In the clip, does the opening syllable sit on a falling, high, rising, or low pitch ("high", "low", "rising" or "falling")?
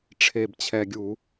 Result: low